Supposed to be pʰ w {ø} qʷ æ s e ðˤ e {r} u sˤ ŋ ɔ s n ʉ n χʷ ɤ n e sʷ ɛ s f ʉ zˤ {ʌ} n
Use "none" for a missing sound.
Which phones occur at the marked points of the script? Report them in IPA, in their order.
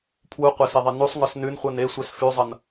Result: u, n, ʌ

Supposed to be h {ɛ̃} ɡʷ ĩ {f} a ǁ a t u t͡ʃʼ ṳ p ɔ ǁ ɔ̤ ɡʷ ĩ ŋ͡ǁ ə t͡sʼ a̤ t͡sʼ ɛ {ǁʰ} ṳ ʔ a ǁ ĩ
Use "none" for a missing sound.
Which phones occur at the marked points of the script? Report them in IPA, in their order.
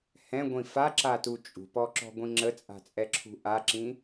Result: ɛ̃, f, ǁʰ

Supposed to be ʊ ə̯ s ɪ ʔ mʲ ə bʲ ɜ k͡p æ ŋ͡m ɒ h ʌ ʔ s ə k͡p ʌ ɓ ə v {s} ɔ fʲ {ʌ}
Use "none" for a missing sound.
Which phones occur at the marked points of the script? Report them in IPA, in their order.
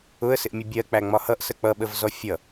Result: z, ʌ

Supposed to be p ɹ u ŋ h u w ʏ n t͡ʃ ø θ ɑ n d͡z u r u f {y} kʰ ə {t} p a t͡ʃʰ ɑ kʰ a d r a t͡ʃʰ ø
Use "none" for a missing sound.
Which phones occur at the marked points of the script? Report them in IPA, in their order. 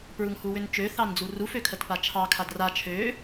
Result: ø, t

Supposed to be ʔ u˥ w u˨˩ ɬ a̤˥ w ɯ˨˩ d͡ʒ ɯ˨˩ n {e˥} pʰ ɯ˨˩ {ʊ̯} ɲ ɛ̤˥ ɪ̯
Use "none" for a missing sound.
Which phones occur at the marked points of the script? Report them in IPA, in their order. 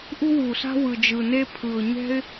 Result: e˥, ʊ̯

